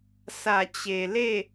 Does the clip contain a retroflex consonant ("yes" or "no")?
no